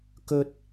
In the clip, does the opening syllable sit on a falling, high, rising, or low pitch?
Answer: high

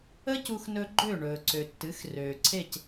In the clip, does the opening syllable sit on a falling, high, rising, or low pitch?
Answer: high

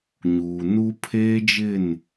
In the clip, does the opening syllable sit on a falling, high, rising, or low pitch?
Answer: low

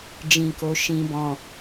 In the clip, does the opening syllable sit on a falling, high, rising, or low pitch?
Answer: low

